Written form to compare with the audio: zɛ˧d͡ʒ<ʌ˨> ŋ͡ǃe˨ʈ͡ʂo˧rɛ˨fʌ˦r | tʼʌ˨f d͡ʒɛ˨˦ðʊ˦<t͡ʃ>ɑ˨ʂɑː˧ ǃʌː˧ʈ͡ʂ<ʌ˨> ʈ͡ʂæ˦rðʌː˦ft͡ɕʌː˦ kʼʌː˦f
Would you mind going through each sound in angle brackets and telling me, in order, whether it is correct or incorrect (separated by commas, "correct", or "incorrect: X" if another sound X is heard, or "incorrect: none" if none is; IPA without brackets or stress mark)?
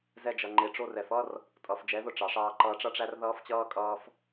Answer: correct, incorrect: ʈ͡ʂ, incorrect: ʌ˦